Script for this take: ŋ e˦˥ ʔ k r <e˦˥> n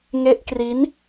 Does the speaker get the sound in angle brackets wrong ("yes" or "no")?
yes